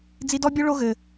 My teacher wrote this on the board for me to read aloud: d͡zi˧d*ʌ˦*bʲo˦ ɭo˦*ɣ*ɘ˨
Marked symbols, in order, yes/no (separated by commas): no, yes